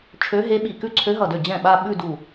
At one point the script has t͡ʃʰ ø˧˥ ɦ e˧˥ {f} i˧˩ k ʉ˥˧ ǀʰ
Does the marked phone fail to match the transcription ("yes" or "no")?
yes